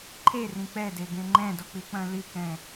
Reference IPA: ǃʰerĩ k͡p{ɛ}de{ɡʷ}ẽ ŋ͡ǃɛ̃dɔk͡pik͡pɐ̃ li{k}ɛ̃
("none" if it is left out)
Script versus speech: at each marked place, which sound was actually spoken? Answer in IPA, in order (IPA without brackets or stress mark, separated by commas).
ɛ, ɡ, k